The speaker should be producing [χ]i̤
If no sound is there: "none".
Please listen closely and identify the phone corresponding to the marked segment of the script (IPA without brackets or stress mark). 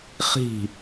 χ